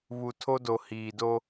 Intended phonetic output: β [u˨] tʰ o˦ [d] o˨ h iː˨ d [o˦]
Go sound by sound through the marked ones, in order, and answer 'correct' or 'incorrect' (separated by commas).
correct, correct, correct